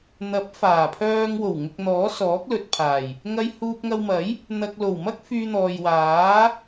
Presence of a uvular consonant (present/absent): absent